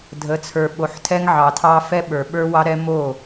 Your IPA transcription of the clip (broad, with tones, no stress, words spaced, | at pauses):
dʱə˨˦t͡sʰə˞˨ɓo˨ħ tʰɛ˦ŋʕɑ˨tʰɑ˦ fɛ˦ɓə˞˨ɓə˞˦ wɑ˦ɾɛ˦ mo˦˨